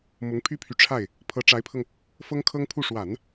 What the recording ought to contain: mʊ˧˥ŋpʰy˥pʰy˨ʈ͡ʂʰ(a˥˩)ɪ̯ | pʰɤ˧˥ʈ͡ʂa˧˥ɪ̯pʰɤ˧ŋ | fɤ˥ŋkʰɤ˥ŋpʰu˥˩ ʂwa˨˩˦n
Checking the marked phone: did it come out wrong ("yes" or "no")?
no